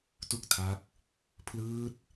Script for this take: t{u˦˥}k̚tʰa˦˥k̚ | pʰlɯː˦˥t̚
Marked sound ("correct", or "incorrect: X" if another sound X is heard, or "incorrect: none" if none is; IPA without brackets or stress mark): incorrect: u˥˩